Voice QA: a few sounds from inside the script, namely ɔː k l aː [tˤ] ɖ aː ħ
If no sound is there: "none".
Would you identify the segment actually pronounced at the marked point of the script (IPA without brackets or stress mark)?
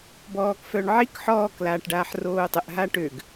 ʈ